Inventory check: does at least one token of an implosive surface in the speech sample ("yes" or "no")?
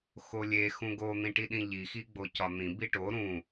yes